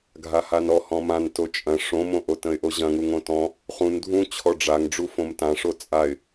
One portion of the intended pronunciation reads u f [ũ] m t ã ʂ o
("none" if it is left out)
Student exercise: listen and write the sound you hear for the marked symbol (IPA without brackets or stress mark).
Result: õ